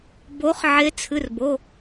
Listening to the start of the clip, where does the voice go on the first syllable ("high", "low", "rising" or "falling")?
rising